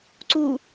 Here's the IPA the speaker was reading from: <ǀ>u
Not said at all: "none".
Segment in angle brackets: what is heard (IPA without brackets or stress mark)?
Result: ǀ